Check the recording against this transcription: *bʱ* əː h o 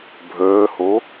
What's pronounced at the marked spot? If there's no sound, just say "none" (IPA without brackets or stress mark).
bʱ